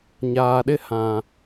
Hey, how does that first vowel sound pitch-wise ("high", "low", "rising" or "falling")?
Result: low